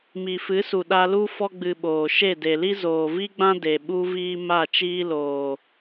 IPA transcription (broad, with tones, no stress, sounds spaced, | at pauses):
m i˨ f ɨ˨˦ s u˨ ɗ a˧ l u˦ f ɔ˧ ɡ͡b ɨ˨ ɓ oː˨ ʃ e˦˨ d e˨ l i˦ z oː˨ v i˦ ɡ͡b ã˦ d e˨ ɓ u˦ v iː˦ m a˦˨ t͡ʃ iː˦ l oː˨